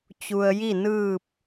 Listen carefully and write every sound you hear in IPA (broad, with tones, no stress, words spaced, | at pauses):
t͡ɕu˧ə̯ji˥˨ nɯː˥˨p̚